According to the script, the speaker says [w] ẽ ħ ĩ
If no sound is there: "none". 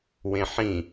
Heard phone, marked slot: w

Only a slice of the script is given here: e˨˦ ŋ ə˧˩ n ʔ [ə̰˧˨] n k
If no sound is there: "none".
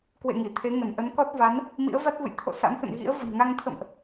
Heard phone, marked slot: ə˨˦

